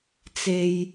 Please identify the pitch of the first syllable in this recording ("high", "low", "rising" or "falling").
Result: low